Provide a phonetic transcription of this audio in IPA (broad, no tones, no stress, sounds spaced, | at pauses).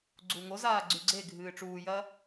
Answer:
ɡ͡ǀ u ŋ o z aː ɡ͡ǀ ʉ ɡ͡ǀ e ɡʱ ɨː ʈ͡ʂ uː j ɐː